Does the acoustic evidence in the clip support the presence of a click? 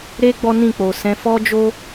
no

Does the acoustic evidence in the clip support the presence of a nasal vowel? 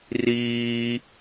no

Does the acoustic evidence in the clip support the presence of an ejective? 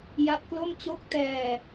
no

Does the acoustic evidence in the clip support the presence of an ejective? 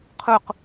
no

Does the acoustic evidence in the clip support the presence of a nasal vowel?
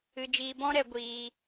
yes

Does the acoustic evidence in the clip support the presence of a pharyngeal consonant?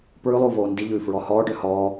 no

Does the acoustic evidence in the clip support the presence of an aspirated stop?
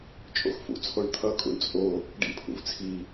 yes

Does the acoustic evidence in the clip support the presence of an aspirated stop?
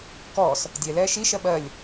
no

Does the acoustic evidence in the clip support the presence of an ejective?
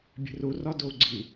no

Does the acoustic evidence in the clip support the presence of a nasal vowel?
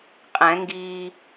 yes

